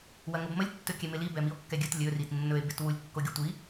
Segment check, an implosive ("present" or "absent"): absent